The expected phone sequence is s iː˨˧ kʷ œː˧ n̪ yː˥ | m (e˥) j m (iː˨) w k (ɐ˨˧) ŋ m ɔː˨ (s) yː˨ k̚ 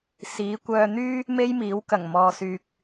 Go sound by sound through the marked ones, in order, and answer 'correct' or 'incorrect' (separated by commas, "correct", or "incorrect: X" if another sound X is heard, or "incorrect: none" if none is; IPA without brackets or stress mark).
correct, incorrect: iː˨˥, incorrect: ɐ˨˩, correct